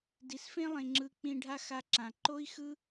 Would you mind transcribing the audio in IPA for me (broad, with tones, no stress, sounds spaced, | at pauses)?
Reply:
d i˨ s f ẽ˧ lˠ ẽ˨ ŋ͡ǁ ɯ˧ k͡p ĩ˧ ɖʱ a˦ x a˧ ǁ ã˨ ǃ o˦ i̯ x ɯ˦